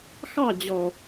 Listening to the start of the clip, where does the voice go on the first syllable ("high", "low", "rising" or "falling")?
falling